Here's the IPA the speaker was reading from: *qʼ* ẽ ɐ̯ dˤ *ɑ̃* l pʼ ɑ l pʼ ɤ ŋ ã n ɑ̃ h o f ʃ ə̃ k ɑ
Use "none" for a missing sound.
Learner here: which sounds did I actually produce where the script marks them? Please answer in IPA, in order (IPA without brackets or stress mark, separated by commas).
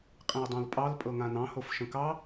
qʼ, ɑ̃